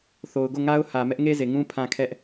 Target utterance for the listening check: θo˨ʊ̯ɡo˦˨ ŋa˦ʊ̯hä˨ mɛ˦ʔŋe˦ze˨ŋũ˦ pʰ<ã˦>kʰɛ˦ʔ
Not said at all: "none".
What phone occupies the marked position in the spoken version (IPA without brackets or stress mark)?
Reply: ã˦